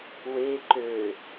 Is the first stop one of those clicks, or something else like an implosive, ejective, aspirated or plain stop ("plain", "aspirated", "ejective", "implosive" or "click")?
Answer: click